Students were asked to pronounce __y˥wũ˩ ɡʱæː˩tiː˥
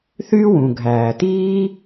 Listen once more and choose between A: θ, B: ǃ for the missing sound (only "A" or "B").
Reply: A